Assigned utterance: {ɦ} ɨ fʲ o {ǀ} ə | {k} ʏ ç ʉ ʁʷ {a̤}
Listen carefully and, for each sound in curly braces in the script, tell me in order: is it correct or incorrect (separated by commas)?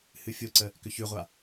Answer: incorrect, correct, correct, incorrect